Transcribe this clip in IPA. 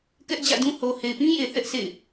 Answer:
k ɛ˦ ʔ d͡ʑ ä̰˦˨ d ũ˦ h o˨ h e˨ ɪ̯ p ĩ˦ j e˨ θ ɛ˦ ʔ s ḛ˦˨ ɪ̯

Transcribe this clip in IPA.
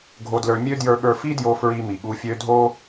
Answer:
ɡʱ o˧ d l ə˞˧ mʲ ø˦ d j ə˞˧ ɠ ə˞˧ f i˦ d j o˧ f ɹ i˧ m i˨ ɠ u˧ fʲ ø˦ dʱ o˦

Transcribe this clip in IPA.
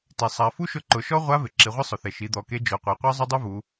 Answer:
t i˩ sˤ a˩˧ f u˥ ʃ ʊ˧˥ ǃ ʊ˩˧ ʃ ɔ˥ ʁʷ a˧˥ v ɪ˩ ǁ i˩˧ ʁʷ ɪ˥ sˤ ʊ˩ θ e˩ ʃ i˩˧ d̪ ɔ˩˧ k e˧˥ d͡ʒ o˩˧ qʷ e˩˧ qʷ a˥ zˤ ʊ˥ dˤ u˥ v u˩˧

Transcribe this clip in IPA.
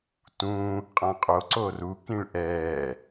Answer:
t ũː | qʼ ã qʼ o ǀ o r u k ĩ ɭ ʔ ɛː

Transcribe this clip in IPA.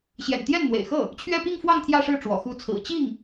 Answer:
ɕ j ɛ̰˨˩ n t̪ j ɛ˥˩ n n̪ w ḛ˨˩ ɪ̯ x ɤ˥˩ | t͡ɕʰ ɥ ɛ˥˧ p i˥˧ ŋ f w ɑ˥˧ ŋ t̪ʰ j ä˥˧ ʂ ɻ̩˥˩ ʈ͡ʂ w ɔ̰˨˩ x u˧˥ t͡sʰ ɹ̩˨˩ t͡ɕ i˥˩ ŋ

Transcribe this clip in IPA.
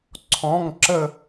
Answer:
ǀʰ ɔ̃˩˧˩ ŋ ǁ ə˧˩

